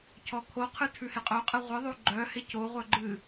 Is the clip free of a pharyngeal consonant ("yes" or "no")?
yes